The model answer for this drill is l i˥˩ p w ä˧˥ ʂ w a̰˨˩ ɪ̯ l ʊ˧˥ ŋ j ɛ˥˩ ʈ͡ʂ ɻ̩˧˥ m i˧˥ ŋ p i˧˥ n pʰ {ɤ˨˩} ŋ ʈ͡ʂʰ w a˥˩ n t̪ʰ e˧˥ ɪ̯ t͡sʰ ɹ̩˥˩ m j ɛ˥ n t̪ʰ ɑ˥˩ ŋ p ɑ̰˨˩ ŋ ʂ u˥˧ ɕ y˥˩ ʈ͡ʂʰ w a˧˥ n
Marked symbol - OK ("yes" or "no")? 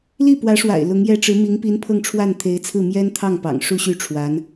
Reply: no